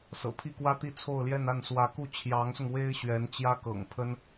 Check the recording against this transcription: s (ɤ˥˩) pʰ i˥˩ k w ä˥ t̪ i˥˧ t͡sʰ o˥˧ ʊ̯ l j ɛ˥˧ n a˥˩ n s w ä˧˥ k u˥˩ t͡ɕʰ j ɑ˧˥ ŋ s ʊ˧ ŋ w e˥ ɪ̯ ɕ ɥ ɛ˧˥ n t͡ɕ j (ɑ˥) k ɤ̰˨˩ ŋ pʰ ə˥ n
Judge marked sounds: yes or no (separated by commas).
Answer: no, no